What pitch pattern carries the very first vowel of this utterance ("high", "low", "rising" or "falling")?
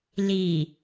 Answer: low